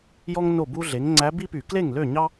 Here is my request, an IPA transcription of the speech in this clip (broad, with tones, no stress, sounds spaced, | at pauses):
j ɔ˥ ŋ n o˥˩ b u˥ ɮ e˩˥ ŋ ŋ͡ǀ æ˧˥ b i˥ p y˧˩˧ k l e˥˩ ŋ l ø˥˩ ɲ ɑ˥